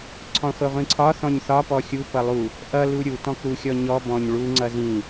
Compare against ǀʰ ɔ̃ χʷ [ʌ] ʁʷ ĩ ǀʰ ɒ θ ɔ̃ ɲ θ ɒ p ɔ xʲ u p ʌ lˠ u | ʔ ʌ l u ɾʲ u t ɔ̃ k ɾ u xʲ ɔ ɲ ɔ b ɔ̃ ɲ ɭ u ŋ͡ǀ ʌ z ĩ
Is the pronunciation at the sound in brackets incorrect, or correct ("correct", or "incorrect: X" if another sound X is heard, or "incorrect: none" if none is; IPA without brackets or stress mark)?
correct